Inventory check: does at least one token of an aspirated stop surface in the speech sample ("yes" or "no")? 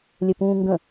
no